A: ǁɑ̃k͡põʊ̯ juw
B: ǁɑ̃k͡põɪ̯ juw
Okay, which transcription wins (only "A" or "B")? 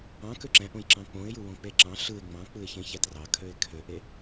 B